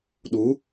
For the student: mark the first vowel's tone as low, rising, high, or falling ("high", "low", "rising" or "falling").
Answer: rising